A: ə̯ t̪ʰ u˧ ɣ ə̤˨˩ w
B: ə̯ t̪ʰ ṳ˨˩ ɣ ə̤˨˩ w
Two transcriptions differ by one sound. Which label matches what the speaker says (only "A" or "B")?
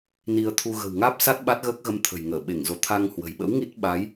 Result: A